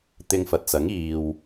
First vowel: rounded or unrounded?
unrounded